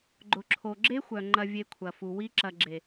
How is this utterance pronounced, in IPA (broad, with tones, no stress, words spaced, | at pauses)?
ɡ͡ǃʊ˨ǁʰo˨ ɡ͡ǁe˦xʷœ˨ ŋ͡ǃɐ˧vʲe˧kʷʰɐ˨ fu˨ wi˦ǁɐ˧ ɡ͡ǁe˨